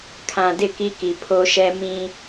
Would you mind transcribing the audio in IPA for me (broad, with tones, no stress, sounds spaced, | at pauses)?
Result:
kʰ ã˨ d ɪ˦˨ k i˦ k i˨ pʰ o˦ ʃ ɛ˦ m ĩ˦